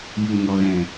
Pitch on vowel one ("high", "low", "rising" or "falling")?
low